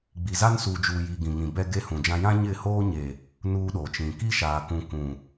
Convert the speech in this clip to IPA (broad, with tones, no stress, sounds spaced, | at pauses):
ɡ͡b i˨ z a˦ n s uː˨ d͡ʒ uː˨ j i˨ ɡ ĩ˨ ŋ ĩ˨ b ɛ˦ ɡ e˦ h ũ˨ d͡ʒ ã˦ j ã˦ ɲ ɪ˦˨ h oː˦ ɲ e˨ | n uː˦ ɗ o˨ t͡ʃ ĩ˨ k i˦ ʃ aː˨ k ũ˨ k ũ˨